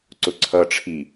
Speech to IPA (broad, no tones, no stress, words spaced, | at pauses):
ǀʊǀʰʌʈ͡ʂʰi